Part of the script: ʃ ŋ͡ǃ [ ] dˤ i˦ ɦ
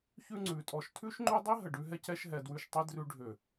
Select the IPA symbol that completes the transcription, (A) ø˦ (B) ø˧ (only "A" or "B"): A